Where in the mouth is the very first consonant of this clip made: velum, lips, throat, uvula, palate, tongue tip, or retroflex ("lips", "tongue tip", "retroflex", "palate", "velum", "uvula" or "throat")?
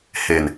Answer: throat